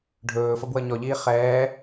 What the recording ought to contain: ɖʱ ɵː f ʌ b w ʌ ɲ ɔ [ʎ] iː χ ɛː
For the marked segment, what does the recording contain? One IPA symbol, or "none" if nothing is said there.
ʎ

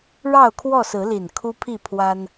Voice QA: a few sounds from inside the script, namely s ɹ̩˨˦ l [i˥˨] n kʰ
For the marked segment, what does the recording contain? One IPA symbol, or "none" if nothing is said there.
i˨˩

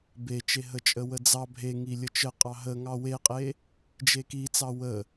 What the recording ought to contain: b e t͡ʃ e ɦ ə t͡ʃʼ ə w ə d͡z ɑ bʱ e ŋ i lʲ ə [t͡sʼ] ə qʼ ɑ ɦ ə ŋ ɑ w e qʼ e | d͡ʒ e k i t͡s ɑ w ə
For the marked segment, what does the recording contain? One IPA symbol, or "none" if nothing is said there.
t͡ʃ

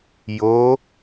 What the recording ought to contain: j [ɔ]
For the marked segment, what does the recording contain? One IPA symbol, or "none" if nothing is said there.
o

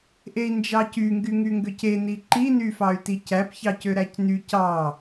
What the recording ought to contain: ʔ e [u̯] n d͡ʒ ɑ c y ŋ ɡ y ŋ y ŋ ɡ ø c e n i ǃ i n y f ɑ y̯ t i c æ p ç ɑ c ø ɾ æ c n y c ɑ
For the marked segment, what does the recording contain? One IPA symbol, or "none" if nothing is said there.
i̯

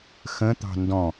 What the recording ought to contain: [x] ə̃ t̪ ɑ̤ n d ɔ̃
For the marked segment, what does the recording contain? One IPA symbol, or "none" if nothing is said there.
x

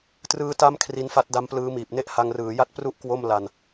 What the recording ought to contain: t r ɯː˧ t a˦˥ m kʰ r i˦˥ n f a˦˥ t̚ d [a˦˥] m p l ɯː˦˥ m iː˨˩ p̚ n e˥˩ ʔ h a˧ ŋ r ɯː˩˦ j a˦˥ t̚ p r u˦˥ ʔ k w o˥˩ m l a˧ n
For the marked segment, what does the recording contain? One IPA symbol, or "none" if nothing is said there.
a˦˥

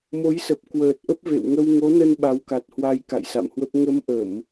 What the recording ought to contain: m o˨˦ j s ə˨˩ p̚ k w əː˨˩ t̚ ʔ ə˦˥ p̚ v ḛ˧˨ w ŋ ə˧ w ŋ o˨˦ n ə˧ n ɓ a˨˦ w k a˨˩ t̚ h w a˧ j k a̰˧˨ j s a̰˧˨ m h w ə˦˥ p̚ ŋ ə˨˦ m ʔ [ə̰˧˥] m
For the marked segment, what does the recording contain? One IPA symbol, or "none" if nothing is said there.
ə˧˩˨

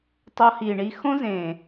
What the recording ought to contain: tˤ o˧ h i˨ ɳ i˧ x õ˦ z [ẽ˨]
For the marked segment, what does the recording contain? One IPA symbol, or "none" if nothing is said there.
ẽ˨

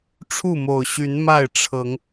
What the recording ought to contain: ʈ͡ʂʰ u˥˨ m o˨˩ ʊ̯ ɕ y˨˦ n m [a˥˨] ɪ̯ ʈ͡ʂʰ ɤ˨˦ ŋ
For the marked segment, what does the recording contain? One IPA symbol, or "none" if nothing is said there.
a˥˨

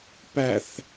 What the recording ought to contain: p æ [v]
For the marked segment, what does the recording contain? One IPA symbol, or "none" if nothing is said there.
θ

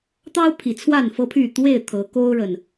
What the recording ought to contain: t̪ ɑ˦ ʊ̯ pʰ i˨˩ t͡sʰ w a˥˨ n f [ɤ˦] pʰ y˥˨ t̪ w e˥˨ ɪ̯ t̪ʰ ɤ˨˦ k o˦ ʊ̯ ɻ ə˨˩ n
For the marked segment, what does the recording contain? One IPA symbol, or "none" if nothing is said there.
ɤ˦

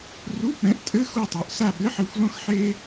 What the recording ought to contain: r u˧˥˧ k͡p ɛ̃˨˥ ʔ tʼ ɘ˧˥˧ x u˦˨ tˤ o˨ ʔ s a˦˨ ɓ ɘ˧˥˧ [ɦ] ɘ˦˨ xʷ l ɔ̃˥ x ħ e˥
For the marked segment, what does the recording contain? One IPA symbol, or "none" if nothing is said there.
ħ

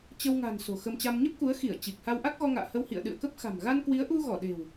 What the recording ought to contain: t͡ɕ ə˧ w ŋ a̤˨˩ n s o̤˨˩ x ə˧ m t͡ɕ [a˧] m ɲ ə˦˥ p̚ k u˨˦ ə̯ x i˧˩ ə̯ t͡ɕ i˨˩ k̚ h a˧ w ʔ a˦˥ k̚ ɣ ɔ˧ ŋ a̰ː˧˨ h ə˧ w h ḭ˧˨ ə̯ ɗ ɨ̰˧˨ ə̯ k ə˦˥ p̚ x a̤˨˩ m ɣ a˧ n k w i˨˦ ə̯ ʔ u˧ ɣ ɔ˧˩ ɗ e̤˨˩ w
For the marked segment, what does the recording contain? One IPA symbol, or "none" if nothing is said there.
a˧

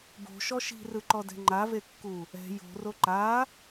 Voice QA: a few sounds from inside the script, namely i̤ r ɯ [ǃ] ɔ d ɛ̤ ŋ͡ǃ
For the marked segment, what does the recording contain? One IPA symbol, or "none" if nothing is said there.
ǃ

